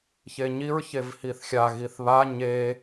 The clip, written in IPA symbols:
çeɲiɹ çevhiθxʲa ɣiθβa ɲe

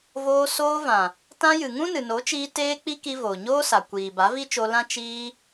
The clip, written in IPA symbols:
voː˧ soː˧vã˨ | tã˧jɨ˨ ŋũ˦nɨ˨no˨˦t͡ʃiː˧ teː˦k͡pi˦ki˧ voː˨ɲoː˦sa˨ kʷiː˨ ba˨˦vi˦t͡ʃo˧lã˦ t͡ʃiː˧

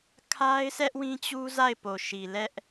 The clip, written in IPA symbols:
kʰa˦ɪ̯sʰɛ˦ʔ wĩ˦t͡ɕu˦ za˦˨ɪ̯ po˨ʃi˨lɛ˦ʔ

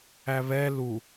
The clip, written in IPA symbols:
æβɛ lu

